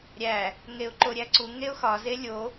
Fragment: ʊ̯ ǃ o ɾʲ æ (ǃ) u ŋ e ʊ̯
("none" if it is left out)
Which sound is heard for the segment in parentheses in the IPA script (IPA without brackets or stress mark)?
ǀ